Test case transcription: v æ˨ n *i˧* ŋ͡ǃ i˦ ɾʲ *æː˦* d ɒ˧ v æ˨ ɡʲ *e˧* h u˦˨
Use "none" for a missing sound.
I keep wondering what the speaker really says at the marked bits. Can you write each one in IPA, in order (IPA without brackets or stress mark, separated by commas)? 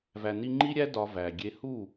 i˧, æ˦, e˧